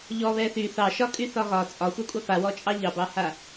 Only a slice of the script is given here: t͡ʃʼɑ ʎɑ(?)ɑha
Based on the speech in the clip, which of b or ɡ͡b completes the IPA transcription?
b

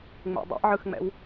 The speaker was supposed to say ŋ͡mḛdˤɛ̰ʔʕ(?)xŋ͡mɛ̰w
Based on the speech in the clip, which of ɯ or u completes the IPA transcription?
ɯ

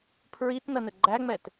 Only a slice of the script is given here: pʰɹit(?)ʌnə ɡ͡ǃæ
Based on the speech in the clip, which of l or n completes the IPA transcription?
n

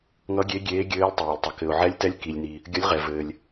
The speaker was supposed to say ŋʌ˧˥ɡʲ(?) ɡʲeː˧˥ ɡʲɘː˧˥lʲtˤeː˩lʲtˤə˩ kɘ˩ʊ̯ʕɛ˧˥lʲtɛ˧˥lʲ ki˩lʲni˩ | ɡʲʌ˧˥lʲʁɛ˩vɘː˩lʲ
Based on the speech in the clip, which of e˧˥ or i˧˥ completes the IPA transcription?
e˧˥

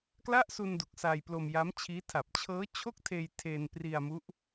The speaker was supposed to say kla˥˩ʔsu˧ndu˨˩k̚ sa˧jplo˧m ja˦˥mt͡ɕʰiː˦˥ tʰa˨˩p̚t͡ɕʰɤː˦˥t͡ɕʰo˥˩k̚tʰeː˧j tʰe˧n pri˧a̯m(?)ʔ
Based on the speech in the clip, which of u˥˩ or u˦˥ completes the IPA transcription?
u˦˥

